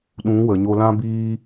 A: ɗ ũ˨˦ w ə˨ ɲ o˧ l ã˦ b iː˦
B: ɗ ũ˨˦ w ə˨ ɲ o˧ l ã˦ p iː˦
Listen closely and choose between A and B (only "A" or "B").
A